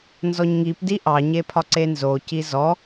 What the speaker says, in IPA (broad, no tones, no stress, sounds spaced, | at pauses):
n z ɔ ɲ ŋ i p d i ʔ ɑ ɲ e pʰ ɒ ǀ e n z o c i z ɔ